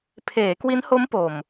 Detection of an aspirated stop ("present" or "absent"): present